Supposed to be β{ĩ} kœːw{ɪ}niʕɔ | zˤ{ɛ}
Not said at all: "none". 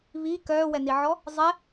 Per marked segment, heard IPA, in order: i, ɛ, ɛ

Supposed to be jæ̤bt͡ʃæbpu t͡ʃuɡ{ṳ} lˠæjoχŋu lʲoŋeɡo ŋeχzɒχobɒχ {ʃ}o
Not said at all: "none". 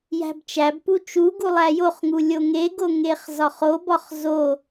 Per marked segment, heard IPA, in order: u, z

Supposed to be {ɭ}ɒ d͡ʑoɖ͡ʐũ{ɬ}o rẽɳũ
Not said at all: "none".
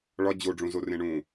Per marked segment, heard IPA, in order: ɭ, z

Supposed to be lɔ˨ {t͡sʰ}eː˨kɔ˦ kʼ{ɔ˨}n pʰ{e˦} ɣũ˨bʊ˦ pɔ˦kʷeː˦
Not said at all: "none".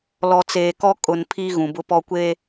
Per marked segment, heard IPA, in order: t͡s, ʊ˨, i˦

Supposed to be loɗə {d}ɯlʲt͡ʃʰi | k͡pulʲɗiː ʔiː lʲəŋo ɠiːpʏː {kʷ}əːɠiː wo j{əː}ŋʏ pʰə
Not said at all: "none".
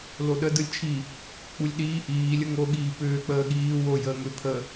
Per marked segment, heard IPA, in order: d, k͡p, əː

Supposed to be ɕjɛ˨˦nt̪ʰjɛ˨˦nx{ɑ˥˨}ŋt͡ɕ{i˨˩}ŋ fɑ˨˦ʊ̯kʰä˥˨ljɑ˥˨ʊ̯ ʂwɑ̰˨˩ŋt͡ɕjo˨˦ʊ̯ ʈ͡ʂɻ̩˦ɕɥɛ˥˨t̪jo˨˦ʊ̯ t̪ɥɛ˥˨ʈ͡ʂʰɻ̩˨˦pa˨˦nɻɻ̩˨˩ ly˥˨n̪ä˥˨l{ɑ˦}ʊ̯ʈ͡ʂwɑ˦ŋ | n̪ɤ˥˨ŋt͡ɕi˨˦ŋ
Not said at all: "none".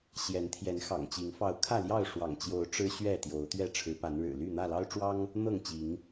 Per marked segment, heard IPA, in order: ɑ̰˨˩, i˨˦, ɑ˦

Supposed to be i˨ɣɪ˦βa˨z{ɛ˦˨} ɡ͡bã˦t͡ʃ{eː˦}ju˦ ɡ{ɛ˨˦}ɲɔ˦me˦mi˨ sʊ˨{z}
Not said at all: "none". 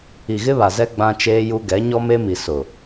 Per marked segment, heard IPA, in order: ɛ˦, eː˦, ɛ˨˦, none

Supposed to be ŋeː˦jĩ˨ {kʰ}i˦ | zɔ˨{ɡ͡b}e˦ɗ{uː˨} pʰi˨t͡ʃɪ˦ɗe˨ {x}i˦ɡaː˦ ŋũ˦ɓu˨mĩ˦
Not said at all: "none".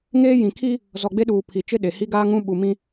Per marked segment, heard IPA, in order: kʰ, ɡ͡b, uː˨, h

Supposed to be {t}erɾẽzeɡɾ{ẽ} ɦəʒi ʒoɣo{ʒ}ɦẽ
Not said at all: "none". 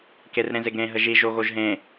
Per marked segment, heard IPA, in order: k, ẽ, ʒ

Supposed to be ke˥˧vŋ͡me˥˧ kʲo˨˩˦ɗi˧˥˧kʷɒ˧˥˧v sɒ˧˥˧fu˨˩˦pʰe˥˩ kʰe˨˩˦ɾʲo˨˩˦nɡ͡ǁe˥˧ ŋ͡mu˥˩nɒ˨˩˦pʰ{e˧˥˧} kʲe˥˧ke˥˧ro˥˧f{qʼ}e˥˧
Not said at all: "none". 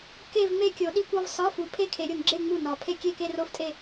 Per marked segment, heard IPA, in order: e˥˧, tʼ

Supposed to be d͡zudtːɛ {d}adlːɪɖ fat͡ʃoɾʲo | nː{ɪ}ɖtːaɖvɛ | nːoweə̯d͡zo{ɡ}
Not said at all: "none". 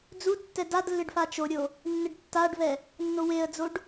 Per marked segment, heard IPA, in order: d, ɪ, ɖ

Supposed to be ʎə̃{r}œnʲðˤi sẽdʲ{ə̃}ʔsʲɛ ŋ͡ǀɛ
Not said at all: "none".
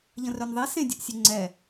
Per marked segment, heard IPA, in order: r, ə

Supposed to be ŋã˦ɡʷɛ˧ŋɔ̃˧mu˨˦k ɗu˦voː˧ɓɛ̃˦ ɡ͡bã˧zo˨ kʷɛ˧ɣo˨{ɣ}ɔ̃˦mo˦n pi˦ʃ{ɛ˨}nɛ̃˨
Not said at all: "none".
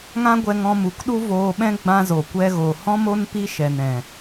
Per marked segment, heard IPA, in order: h, ɛ˨

